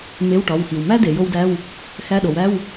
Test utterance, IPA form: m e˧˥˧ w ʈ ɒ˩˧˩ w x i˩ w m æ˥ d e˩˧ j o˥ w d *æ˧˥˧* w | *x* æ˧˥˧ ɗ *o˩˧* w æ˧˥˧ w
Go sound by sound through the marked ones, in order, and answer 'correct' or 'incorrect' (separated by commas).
correct, correct, correct